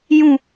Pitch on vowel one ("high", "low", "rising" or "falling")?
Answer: falling